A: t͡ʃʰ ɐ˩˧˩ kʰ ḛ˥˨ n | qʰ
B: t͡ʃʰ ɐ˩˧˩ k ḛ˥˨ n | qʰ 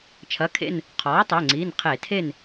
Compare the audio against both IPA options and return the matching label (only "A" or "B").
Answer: A